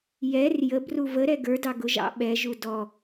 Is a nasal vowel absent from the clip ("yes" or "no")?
yes